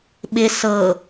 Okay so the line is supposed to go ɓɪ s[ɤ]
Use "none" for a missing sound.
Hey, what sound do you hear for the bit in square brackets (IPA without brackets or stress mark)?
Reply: ɤ